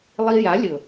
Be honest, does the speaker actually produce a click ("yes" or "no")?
no